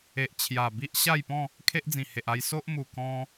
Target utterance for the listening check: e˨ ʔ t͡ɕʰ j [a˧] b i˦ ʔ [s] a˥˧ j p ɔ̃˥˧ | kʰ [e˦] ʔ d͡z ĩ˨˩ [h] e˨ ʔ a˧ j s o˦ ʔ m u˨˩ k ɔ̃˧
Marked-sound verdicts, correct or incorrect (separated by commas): incorrect, incorrect, correct, correct